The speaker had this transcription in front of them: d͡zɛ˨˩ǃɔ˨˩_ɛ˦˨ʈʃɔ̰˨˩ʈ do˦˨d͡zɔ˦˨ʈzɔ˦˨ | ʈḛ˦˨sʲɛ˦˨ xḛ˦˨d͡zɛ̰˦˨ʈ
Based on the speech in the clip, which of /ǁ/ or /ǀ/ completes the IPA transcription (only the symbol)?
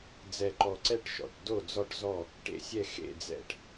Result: ǀ